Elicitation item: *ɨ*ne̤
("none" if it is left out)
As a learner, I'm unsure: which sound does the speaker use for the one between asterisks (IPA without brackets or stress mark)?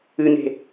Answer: ɨ